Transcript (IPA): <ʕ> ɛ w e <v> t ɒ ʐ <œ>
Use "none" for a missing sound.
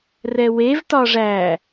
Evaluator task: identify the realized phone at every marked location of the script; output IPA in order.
r, v, æ

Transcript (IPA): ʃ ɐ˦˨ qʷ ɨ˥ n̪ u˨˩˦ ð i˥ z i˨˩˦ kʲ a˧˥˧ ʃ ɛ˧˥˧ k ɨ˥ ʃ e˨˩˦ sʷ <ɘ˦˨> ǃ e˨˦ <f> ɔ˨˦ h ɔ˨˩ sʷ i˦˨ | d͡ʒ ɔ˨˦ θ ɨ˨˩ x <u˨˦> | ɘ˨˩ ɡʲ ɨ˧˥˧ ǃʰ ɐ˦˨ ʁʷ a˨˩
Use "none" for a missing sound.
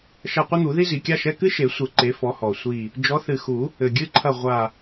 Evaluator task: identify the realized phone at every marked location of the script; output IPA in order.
ɘ˨˩˦, f, u˨˩˦

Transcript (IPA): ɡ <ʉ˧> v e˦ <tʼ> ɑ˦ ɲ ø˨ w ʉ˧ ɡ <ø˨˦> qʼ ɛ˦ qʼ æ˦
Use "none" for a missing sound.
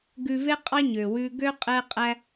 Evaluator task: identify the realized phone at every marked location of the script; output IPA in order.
ʉ˧, qʼ, ø˦

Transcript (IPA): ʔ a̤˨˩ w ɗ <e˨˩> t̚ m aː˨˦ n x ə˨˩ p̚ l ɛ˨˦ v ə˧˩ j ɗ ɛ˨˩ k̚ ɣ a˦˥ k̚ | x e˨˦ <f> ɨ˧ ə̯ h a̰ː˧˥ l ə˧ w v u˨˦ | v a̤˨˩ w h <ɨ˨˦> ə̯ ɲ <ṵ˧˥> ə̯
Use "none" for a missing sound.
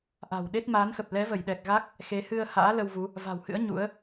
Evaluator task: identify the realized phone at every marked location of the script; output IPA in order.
e˦˥, h, ɨ̰˧˥, ṵ˧˥

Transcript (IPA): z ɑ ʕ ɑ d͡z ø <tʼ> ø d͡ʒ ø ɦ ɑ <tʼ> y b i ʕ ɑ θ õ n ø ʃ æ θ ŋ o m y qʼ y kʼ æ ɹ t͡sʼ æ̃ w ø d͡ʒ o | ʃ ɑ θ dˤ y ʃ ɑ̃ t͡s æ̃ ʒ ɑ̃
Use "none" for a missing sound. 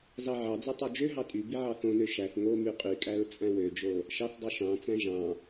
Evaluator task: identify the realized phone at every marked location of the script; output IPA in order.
tˤ, tʼ

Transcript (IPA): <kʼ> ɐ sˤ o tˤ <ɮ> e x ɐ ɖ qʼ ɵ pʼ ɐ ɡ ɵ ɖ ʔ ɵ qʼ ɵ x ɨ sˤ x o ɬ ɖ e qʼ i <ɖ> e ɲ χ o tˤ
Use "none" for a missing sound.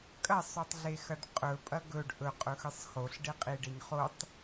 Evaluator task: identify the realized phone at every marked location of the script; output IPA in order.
kʼ, ɮ, ɖ

